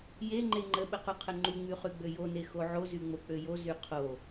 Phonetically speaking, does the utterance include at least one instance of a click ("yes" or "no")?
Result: yes